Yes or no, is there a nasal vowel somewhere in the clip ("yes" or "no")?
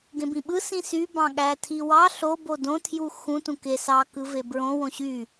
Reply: yes